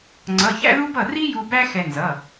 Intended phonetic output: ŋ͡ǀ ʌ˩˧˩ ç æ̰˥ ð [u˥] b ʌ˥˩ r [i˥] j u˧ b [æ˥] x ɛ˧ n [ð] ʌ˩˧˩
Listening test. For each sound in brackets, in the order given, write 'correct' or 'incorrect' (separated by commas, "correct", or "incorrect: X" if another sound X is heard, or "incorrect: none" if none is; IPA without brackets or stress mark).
correct, correct, correct, incorrect: z